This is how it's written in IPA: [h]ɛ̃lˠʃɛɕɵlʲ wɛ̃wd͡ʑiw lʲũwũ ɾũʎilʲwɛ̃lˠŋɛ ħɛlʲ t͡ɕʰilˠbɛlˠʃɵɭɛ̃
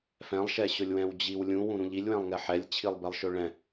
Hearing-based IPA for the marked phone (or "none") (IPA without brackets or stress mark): f